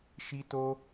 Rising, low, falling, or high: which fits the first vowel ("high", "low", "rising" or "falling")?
high